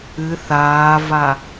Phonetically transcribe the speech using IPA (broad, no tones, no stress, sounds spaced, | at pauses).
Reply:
ɨ θ aː v a